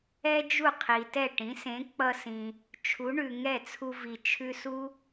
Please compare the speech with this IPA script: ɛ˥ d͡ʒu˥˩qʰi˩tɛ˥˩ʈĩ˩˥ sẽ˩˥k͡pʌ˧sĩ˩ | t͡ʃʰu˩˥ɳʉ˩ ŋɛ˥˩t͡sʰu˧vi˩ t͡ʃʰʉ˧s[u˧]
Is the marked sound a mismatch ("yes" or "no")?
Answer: yes